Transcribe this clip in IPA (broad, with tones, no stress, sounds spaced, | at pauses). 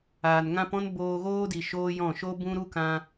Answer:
aː˨ n ŋ ã˦ p ɔ̃˦ n b oː˧ ɣ oː˦ d i˨ ʃ oː˦ j ɔ̃˦˨ ʃ o˦ b ũ˦ ɾ u˦ k ã˦